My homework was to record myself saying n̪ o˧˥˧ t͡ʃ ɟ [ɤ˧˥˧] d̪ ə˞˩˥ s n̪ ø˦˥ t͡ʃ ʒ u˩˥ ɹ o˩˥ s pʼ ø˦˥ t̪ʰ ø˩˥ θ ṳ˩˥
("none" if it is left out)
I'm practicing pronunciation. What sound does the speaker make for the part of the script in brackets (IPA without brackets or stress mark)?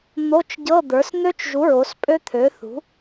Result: ɤ˧˥˧